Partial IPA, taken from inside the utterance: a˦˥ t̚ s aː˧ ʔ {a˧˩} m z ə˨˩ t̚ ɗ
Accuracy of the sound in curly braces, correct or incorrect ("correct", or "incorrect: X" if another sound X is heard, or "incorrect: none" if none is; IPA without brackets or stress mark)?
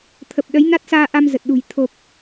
incorrect: a˧